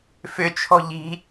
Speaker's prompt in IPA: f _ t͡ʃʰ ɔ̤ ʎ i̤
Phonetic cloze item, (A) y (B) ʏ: B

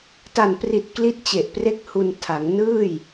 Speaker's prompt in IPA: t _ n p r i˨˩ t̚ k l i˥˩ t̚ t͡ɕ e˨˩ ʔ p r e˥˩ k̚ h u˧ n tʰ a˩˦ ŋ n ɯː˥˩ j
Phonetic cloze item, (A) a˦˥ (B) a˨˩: B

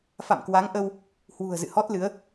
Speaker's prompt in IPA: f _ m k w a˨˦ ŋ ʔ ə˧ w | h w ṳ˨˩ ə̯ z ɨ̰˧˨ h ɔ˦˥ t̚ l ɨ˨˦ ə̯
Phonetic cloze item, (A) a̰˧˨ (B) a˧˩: A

